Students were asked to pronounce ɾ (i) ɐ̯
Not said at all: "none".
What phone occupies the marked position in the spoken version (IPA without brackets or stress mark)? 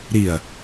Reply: i